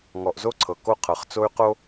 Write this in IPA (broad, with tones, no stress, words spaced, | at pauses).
ŋɔ˨ʔzo˦ǀʰɤ˨ ko˦qʰɤ˨χt͡so˦y̯qo˦